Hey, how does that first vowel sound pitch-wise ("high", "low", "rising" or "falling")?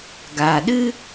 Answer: low